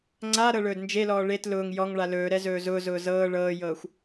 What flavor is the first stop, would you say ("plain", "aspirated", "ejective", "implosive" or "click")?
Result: click